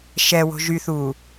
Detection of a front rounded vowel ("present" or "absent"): present